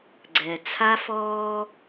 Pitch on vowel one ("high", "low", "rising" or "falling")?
low